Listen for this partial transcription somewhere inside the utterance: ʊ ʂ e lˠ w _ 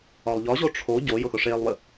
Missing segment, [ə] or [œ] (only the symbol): ə